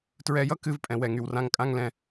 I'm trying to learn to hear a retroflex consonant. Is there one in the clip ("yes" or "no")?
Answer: no